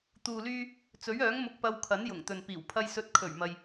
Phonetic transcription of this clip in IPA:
t̪ uː˨ l yː˧ | t͡s ɵ˨˥ ɥ œː˨˥ ŋ m ʊ˧ k̚ p ɐ˧ w kʰ ɐ˨˥ n j ʊ˨˩ ŋ t̪ ɵ˨ n p iː˨˩ w pʰ ɐ˧ j s ɵ˧ t̚ kʰ ɵ˨˩ ɥ m ɐ˨ j

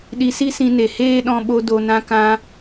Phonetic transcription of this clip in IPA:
ɗ i˧ s i˦ s ĩ˧ n e˨ h eː˦ ɗ ɔ̃˧ ɓ o˧ d o˨ n ã˧ k ã˧

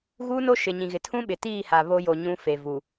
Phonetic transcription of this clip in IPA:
ɣ uː˦ n o˦ ʃ ɪ˨ ɲ ĩ˨ ɣ ɪ˨ tʰ ũ˦ ɓ ɪ˨ t iː˦˨ h a˨ β o˦ j o˨ ɲ ũ˦ f e˨ v u˨

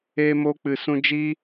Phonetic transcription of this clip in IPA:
eː˧ m o˧ k͡p ɨ˨ s ũ˧ d͡ʒ i˦

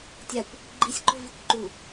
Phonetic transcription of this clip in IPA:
tʲ a kʷ | ɡ͡ǃ i sʲ ɡ͡ǃ o v i kʷ ǃ u

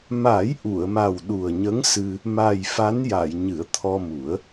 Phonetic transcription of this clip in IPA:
m a˨˩˦ j ʔ u˨˩˨ ə̯ m a˨˩ w ɗ u˨˩ ə̯ ɲ ə˧˥ ŋ s ɨ˧ | m a˨˩ j f a˧˥ n j a˨˩˨ j ɲ ɨ˨˩˦ ə̯ t̪ʰ ɔ˧ m u˨˩˦ ə̯

